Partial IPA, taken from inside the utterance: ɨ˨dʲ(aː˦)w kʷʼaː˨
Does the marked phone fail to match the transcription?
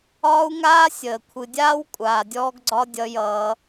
no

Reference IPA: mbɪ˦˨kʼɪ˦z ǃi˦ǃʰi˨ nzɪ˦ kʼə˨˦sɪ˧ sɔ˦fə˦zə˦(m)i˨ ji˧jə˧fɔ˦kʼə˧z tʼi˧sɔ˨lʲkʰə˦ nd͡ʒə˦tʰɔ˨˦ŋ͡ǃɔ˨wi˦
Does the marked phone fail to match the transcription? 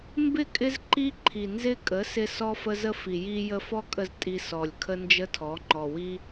yes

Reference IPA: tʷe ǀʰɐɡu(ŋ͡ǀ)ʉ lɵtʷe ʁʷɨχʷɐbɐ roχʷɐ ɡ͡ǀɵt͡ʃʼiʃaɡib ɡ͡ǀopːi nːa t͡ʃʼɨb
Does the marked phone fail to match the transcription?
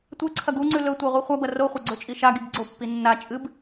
no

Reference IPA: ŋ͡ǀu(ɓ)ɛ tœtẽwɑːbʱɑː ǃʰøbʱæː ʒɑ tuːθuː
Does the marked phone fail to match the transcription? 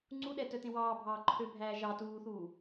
yes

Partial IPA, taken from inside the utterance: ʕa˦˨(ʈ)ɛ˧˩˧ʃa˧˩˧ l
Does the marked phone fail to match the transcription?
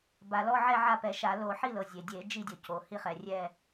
yes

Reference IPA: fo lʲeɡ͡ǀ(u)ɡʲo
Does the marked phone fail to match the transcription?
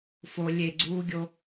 yes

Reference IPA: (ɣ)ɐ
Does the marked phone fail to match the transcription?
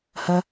yes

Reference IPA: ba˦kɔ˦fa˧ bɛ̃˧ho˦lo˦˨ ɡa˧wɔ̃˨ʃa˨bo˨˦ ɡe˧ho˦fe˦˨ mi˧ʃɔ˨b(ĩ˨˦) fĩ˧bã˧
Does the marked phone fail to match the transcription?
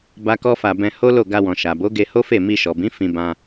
no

